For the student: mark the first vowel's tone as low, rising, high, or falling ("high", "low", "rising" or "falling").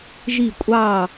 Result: falling